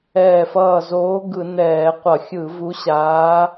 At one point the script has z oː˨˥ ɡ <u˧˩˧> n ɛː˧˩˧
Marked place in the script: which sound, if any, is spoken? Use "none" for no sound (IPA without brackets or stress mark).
ɯ˧˩˧